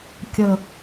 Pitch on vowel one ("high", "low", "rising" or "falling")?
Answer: high